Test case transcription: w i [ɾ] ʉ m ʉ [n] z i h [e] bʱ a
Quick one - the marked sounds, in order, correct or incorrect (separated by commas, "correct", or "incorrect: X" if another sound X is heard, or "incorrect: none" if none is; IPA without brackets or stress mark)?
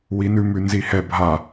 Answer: incorrect: n, correct, incorrect: ɛ